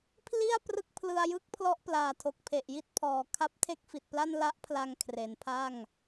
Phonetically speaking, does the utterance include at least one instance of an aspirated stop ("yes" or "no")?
yes